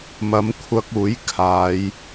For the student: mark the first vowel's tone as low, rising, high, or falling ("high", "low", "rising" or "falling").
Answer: rising